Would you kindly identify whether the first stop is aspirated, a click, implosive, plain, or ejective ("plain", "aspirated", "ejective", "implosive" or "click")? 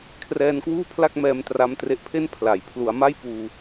aspirated